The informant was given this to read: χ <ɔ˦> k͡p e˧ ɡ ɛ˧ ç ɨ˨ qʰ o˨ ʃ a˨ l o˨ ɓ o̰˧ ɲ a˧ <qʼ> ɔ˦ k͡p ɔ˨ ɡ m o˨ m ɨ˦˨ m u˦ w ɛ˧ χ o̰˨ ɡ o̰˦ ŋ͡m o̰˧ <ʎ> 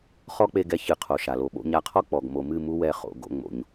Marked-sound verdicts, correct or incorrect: correct, incorrect, incorrect

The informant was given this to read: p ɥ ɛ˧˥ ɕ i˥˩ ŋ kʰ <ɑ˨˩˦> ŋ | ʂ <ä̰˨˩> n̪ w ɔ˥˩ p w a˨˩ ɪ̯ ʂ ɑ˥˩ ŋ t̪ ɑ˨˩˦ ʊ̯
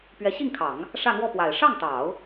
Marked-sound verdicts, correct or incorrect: correct, incorrect

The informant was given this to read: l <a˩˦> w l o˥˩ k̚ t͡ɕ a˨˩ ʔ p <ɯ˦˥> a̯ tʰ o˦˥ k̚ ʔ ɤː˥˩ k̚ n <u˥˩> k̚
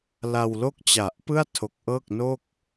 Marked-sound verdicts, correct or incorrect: incorrect, incorrect, incorrect

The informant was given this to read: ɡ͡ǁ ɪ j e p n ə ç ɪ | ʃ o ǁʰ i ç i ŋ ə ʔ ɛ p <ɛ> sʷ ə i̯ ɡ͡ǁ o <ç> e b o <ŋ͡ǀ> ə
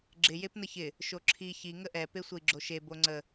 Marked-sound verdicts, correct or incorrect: incorrect, incorrect, correct

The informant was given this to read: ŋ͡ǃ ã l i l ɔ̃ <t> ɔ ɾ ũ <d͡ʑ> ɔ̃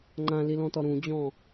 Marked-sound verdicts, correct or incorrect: correct, correct

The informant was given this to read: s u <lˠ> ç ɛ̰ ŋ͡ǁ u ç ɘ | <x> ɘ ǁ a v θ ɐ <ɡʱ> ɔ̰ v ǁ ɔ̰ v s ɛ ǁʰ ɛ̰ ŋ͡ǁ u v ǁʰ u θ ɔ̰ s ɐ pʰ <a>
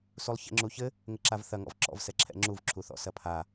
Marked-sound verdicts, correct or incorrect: correct, incorrect, incorrect, correct

